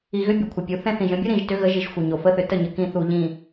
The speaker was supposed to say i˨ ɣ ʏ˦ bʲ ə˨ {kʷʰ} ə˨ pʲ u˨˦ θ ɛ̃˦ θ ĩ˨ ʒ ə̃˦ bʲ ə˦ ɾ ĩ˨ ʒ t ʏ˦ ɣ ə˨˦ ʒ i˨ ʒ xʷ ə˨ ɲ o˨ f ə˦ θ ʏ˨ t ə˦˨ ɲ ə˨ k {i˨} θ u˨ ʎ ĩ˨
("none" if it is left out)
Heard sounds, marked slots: kʷʰ, ĩ˨

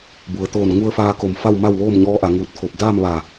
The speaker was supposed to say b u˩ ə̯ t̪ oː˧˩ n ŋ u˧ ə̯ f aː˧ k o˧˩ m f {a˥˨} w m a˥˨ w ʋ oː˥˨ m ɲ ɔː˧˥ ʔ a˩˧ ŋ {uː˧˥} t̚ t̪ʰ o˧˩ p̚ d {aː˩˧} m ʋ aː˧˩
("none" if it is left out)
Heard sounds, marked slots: a˥˨, uː˧˩, aː˥˨

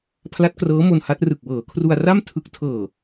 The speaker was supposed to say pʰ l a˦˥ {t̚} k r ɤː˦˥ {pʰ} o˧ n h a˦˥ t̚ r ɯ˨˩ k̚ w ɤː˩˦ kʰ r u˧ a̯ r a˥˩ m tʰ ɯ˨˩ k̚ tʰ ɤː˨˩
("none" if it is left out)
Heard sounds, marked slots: t̚, m

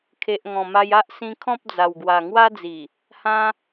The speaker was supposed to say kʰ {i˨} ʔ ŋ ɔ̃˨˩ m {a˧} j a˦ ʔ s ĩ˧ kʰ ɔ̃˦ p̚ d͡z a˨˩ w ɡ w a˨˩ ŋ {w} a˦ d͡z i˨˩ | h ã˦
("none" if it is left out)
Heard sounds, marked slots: e˨, a˧, w

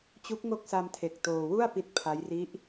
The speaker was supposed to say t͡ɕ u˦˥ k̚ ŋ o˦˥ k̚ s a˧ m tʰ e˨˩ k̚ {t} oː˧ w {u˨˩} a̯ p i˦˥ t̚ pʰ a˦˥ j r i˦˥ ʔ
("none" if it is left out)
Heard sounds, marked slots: t, u˥˩

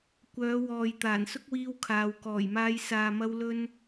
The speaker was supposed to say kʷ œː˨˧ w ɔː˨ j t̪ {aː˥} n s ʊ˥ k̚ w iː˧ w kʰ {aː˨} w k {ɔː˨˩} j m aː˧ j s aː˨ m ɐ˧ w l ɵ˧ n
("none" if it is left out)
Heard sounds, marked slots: aː˨˩, aː˨, ɔː˨˩

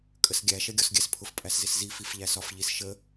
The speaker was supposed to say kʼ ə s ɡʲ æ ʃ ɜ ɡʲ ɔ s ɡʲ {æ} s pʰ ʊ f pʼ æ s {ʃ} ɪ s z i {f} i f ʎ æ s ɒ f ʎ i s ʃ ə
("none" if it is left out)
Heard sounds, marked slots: æ, z, f

